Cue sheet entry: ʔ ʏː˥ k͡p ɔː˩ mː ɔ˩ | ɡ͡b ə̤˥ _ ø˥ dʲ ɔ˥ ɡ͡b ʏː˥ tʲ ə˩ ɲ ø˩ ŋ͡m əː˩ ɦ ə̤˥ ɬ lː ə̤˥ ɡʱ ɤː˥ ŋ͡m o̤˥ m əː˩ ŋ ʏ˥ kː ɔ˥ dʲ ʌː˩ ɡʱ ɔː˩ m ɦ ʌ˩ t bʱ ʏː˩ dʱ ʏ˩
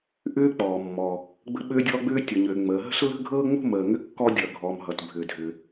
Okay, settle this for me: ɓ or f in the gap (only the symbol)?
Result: ɓ